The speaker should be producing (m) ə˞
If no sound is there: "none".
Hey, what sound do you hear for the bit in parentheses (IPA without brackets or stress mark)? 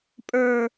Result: pʼ